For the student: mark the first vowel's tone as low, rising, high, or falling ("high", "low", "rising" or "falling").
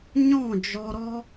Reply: falling